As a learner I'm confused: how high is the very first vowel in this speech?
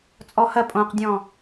mid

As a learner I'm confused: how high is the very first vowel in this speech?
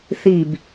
high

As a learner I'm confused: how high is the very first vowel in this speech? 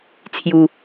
high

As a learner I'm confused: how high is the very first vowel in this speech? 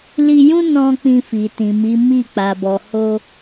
high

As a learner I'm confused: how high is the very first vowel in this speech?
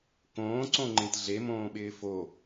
mid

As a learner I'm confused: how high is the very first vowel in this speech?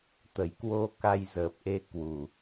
mid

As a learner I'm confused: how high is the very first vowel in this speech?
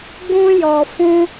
high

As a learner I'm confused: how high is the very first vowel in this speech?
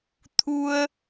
high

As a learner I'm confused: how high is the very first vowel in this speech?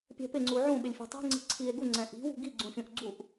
mid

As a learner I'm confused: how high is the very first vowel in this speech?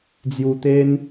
high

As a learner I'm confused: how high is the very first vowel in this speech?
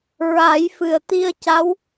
low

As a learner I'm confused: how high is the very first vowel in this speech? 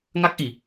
low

